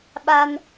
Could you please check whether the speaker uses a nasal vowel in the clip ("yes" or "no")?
no